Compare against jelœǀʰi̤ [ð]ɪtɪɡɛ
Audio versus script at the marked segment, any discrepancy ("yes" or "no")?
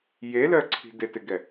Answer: yes